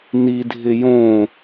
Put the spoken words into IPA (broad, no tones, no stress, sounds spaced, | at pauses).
n i dʱ ɪ j õ